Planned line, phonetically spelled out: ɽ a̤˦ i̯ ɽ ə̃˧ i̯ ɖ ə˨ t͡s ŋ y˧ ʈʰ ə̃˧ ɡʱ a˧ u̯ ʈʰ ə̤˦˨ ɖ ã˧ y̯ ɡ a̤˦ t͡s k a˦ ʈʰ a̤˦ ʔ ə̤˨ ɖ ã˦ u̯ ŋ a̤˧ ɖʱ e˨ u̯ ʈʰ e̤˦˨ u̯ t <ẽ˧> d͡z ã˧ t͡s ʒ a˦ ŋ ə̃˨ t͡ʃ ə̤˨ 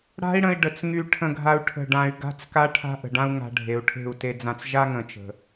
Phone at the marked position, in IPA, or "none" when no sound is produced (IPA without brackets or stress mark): e˧